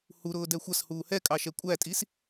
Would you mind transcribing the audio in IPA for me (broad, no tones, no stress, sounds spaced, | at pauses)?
h u ɾ ʊː d ɛ xʷ ʌ s h uː h ɛ kʼ ɑ ʃ ɛ kʷʼ æ tʼ i s